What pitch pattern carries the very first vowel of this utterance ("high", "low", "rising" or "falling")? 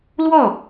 falling